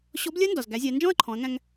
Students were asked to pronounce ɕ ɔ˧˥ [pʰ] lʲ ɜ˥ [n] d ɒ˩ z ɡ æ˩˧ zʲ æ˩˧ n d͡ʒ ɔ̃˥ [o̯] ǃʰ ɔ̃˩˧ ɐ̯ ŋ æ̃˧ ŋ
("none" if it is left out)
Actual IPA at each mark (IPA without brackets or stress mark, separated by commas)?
b, n, ɐ̯